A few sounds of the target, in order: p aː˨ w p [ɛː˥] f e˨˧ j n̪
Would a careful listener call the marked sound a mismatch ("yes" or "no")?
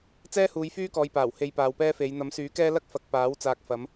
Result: no